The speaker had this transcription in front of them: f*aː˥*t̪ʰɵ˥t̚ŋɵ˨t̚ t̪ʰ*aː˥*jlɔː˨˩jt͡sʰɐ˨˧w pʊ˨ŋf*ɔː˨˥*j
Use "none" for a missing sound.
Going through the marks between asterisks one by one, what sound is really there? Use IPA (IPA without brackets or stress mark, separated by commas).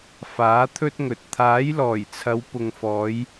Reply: aː˨˥, aː˨˥, ɔː˨˧